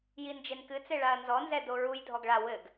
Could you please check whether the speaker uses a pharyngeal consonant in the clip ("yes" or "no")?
no